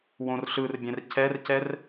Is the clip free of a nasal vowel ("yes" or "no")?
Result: no